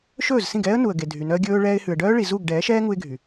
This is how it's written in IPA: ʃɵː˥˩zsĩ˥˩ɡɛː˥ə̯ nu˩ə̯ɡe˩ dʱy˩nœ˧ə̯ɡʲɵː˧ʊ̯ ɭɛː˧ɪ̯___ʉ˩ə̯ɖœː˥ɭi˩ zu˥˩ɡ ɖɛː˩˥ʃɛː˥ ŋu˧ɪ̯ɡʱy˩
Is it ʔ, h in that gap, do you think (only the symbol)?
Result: h